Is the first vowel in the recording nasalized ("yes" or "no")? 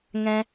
yes